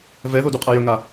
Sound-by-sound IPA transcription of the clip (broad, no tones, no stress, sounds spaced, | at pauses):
v ɛ ð o d u qʼ a j ɵ ŋ a